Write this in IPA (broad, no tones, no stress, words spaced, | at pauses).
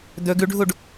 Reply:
d̪ɵ ɡʉɖʱuɖ